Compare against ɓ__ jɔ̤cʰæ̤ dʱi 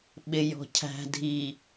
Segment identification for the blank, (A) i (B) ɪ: B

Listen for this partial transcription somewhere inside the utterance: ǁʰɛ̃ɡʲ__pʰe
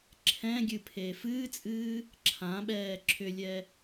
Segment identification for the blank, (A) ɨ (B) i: A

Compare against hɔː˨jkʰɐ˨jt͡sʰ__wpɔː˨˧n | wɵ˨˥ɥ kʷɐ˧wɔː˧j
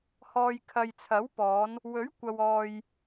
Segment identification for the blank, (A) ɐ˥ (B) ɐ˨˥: B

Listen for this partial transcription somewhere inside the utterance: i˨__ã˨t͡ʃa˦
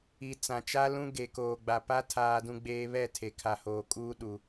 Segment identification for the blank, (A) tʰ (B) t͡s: B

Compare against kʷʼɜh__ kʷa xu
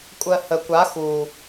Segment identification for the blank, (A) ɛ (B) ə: B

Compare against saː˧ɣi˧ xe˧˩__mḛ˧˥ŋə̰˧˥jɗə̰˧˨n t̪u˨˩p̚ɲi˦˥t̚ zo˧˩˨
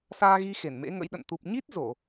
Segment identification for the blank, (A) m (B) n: B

